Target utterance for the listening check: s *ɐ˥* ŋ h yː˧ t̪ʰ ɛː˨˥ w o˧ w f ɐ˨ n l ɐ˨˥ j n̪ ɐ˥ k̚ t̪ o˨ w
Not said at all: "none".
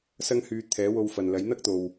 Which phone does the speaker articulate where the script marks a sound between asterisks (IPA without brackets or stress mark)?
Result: ɐ˥